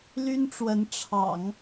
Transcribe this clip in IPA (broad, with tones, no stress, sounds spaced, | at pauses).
l y˥ n ʈ͡ʂ w ə˧˥ n ʈ͡ʂʰ ɑ̰˨˩˦ ŋ